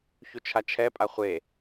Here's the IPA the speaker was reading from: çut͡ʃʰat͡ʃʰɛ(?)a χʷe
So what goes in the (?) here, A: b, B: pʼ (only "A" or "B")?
B